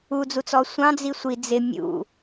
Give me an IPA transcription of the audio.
u d͡z u t͡s ɔ sʷ ɑ̃ d͡z i sʷ i d͡z ɪ mʲ ṵ

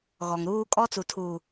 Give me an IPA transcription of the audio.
ɣ ɔ˨ ŋ ɾ uː˦ kʼ ɔ˦ t͡s u˨ tʰ uː˨

